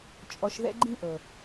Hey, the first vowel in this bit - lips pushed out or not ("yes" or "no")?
yes